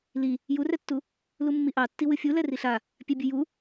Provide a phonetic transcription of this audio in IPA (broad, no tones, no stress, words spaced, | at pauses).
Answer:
li | jurɛtːu | lumːiʔɑtːi wɨfʲulɛ riɬa | pʲɛbʲɨju